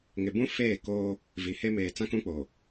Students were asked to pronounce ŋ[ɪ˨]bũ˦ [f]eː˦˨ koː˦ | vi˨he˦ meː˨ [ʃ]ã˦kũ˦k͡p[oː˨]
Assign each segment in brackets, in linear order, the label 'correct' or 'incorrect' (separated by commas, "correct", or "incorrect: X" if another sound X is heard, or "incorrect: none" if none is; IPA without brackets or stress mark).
correct, correct, incorrect: t͡s, correct